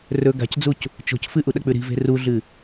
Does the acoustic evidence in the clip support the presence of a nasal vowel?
no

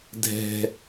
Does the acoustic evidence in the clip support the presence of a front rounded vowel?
no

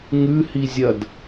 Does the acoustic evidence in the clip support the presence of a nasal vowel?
no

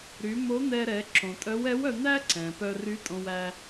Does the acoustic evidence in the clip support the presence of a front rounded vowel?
yes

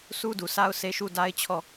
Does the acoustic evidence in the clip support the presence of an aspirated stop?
yes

